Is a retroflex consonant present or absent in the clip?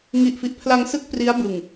absent